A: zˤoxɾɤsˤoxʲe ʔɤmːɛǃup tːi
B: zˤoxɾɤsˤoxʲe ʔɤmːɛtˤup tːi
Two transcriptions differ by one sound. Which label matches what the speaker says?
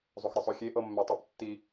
B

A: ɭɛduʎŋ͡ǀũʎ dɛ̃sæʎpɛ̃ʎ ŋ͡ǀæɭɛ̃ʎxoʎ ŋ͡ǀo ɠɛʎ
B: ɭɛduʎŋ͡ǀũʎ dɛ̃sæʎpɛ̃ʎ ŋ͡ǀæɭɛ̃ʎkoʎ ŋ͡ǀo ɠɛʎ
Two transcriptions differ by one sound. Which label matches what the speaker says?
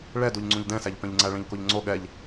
B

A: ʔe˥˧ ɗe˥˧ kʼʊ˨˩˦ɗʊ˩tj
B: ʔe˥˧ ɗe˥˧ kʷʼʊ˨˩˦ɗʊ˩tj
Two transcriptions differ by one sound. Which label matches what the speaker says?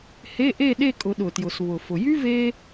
A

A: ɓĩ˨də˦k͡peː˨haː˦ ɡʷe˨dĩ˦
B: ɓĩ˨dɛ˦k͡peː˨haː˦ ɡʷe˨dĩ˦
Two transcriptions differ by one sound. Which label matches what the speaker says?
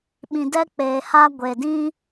B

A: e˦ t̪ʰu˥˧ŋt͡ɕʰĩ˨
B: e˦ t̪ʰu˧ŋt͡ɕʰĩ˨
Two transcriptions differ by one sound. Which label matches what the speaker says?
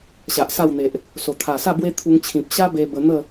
B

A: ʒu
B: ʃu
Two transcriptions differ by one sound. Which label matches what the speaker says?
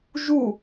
A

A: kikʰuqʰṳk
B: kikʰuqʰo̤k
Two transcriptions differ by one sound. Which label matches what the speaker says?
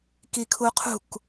A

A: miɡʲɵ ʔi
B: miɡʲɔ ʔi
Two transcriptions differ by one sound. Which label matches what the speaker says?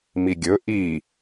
A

